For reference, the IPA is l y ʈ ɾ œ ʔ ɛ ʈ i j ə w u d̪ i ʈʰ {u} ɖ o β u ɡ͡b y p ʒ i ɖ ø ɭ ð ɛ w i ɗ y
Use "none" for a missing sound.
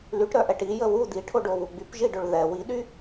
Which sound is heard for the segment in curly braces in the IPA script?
o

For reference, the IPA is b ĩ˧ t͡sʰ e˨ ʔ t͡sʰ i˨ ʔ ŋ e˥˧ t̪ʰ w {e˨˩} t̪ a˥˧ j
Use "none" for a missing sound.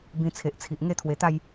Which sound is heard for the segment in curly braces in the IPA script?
e˨˩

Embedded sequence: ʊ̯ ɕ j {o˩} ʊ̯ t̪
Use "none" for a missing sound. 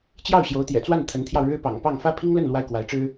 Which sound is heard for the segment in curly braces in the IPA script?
o˧˥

